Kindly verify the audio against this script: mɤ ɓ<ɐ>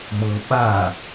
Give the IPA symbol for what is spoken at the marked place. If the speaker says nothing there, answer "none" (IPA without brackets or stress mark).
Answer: a